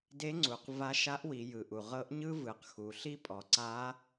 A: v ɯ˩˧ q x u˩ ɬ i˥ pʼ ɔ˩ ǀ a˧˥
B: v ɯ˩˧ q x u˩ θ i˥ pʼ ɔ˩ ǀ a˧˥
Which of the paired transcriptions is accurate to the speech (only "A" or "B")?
A